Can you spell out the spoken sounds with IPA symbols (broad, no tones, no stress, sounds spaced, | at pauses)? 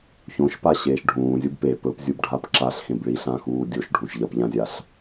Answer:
ç õ ʃ p a ɕ eː ʃ ɖʱ ũː zʲ u b p e p ɵ p zʲ u b ɖʱ a p ǁ a ɬ x ẽ b ɭ i ɬ ã x uː dʲ o ʃ ɖʱ ũ ʃ ʎ ɐ p ʎ ã zʲ a ɬ